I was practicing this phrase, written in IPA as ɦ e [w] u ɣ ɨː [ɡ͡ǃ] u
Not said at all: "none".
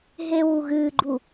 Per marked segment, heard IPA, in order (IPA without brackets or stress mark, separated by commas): w, ɡ͡ǃ